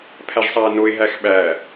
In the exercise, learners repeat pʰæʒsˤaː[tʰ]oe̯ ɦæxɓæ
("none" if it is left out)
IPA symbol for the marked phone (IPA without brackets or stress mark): n